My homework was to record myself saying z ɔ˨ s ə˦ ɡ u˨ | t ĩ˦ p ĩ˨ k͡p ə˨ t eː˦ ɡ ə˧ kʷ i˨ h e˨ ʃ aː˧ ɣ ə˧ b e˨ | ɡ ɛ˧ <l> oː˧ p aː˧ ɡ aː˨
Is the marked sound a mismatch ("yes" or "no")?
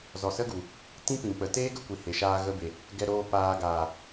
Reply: yes